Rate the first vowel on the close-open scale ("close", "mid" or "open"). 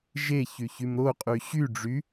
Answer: mid